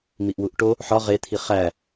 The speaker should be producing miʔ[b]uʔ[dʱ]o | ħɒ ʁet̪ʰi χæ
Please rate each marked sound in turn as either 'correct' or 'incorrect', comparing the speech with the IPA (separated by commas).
incorrect, incorrect